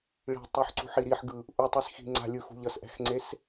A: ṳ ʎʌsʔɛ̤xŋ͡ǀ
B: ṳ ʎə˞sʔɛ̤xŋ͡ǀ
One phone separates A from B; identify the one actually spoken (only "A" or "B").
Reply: A